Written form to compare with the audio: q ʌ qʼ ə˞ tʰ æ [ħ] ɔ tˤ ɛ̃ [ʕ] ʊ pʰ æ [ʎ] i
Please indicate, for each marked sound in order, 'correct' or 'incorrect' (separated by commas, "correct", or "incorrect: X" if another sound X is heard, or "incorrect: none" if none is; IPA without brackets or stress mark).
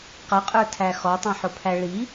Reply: incorrect: x, incorrect: ħ, incorrect: ɭ